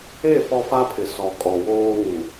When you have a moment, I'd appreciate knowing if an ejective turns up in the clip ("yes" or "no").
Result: yes